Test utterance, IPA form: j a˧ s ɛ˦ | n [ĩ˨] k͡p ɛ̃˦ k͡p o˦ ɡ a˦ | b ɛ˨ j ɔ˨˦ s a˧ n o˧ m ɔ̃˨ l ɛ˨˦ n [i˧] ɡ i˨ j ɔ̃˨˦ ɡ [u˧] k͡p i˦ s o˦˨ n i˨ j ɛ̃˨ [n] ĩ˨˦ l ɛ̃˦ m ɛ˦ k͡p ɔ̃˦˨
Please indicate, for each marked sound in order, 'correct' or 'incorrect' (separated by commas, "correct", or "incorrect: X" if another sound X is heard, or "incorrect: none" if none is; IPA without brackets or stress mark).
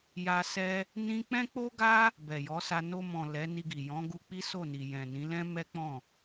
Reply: incorrect: ĩ˦, correct, correct, correct